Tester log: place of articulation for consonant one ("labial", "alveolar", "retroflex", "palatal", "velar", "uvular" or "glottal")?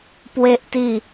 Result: labial